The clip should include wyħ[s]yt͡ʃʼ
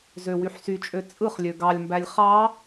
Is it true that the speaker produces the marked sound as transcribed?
yes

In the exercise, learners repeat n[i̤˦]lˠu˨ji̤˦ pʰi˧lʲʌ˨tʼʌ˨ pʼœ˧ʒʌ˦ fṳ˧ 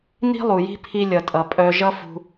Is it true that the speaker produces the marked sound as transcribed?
yes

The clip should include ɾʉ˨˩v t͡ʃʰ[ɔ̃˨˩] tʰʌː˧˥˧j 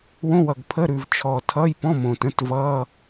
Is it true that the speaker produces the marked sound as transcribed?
no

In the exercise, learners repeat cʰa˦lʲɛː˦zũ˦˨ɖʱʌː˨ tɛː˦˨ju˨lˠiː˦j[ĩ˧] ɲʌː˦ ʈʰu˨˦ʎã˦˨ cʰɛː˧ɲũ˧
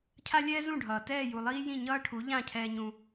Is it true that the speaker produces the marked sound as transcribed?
no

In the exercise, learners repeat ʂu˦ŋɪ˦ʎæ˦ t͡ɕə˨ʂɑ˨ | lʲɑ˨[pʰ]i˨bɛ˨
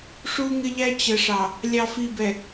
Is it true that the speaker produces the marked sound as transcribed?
no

